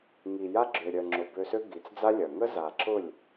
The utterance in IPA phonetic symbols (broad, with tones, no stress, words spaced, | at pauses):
ŋi˨ja˦ ɡ͡ǁø˨ɾʲœ˨ŋ͡ǁʊ˨ bø˧sø˦ ɡi˨t͡sd͡za˦lʲɐ˨ ŋə˦ za˨ǁʊ˦˨lʲ